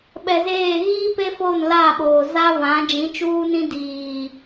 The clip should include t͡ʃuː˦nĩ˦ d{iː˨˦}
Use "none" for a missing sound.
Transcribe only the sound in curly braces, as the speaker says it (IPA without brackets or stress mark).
iː˨